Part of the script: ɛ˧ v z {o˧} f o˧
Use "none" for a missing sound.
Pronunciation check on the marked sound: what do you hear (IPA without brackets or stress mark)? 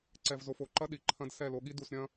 o˧